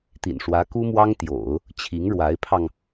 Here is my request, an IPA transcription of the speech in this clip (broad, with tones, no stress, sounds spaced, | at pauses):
t̪ ḭ˨˩ n ʂ w ä˧˥ k u˥ m w ɑ˥ ŋ t̪ j o̰˨˩˦ ʊ̯ | t͡ɕʰ i˧˥ ŋ ɻ w a˧˥ ɪ̯ pʰ ɑ˧ ŋ